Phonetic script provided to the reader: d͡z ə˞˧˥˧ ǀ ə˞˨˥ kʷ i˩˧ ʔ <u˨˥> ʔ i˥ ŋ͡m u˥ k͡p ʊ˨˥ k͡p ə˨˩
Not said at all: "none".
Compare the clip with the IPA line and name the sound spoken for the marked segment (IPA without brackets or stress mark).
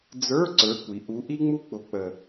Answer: u˨˥